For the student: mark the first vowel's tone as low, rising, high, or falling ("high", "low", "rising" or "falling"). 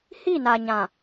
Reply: falling